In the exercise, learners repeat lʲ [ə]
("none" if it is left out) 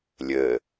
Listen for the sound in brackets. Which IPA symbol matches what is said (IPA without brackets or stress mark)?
əː